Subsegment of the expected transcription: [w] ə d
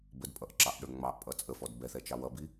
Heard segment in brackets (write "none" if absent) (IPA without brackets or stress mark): b